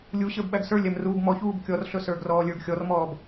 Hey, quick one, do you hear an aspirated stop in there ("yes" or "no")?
no